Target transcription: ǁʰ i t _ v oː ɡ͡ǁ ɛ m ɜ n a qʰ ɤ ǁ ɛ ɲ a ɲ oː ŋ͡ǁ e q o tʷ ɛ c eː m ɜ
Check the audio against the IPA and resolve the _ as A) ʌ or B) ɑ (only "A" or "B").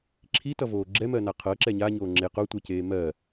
A